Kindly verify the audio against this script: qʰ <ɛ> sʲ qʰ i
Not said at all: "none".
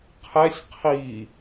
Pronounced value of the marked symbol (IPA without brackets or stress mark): ɛ